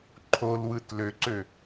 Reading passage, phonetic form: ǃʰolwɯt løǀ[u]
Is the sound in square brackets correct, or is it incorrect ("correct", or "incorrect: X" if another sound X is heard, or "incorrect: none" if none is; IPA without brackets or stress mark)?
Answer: incorrect: ø